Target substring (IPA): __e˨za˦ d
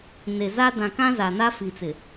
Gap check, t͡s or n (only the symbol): n